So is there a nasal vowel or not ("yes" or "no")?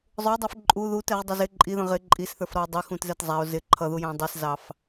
yes